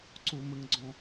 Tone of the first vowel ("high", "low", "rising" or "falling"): high